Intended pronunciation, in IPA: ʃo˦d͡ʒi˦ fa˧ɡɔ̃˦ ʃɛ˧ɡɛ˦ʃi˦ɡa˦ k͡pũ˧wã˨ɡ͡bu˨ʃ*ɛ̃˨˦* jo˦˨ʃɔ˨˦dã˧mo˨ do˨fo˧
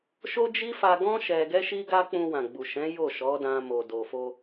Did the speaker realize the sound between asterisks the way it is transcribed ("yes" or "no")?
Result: yes